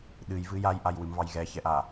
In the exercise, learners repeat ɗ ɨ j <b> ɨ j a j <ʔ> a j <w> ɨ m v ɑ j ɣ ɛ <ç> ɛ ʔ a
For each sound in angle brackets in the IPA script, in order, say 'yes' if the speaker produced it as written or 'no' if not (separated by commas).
no, yes, yes, yes